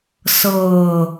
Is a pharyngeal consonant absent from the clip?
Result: yes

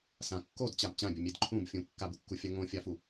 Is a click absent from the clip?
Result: no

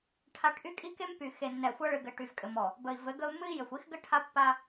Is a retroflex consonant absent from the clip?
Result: no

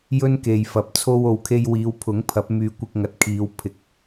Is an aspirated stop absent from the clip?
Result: no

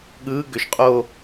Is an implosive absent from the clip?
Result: no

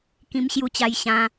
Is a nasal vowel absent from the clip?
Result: no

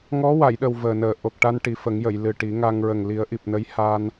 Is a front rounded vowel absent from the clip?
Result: yes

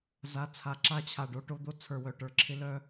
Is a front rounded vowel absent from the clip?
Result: no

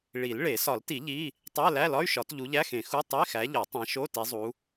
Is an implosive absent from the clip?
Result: yes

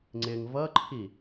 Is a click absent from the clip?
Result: no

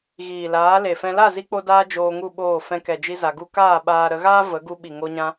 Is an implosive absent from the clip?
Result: no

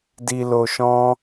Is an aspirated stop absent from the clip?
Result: yes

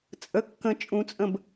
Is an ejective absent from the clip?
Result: no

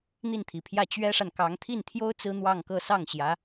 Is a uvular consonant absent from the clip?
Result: yes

